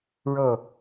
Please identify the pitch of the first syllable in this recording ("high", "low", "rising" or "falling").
falling